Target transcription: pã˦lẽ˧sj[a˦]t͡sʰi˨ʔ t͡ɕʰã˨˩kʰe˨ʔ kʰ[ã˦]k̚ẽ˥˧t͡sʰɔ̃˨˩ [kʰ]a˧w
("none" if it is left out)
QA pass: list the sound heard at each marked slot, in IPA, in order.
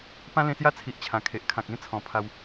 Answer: a˦, ã˨, pʰ

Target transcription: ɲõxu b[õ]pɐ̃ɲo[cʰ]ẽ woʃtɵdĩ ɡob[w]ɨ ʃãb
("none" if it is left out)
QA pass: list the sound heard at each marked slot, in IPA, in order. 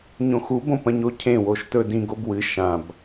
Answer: õ, cʰ, w

